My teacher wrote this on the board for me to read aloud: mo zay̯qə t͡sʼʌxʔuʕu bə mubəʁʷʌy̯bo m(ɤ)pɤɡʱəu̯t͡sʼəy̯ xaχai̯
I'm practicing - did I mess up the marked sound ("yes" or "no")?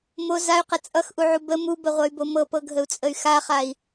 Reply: no